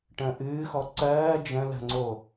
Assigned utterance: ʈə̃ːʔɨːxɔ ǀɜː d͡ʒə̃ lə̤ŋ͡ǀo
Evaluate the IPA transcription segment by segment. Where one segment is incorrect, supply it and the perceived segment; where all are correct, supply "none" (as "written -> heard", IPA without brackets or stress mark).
none